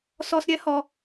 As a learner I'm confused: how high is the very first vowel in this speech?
mid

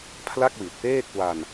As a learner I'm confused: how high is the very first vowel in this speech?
low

